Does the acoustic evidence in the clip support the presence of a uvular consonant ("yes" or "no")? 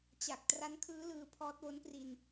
no